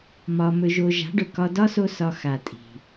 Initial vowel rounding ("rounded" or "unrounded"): rounded